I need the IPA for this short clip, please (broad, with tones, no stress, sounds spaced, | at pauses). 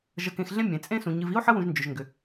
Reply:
ʒ ə˨ k ẽ˨ x ɮ ẽ˦ mʲ ẽ˩ t͡sʼ ẽ˦ s ũ˩ ɲ ɨ˨ v i˥ o̯ ħ ə˥ w ũ˨ ʒ n d͡ʒ ʏ˩ ʒ ŋ ɡ ʏ˩